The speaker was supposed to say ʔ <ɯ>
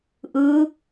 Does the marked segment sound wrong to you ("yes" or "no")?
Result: no